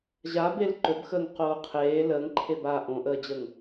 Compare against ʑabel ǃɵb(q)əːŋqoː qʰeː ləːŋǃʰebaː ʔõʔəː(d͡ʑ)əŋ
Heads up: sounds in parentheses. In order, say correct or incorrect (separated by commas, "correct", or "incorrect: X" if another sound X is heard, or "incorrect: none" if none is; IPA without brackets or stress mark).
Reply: incorrect: x, correct